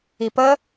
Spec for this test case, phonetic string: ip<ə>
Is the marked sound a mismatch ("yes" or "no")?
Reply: no